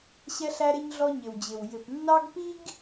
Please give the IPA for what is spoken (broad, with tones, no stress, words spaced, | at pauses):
ɕɛ˦ɬæ˦ɾɪ˦ɲɮɔ˦ ɲɪ˨wd͡ʑɪ˨w jɪ˨pnːɑ˦ɡpi˦ɡ